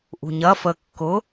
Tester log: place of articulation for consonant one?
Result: glottal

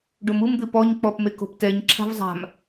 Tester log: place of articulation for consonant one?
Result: retroflex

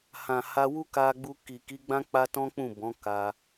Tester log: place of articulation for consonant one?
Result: glottal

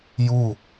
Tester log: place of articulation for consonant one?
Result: palatal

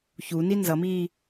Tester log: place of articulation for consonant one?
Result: palatal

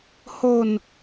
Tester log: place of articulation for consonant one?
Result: glottal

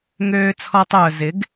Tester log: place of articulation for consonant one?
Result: velar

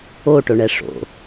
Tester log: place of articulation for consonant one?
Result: retroflex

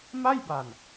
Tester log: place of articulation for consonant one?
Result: labial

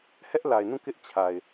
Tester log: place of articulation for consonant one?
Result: glottal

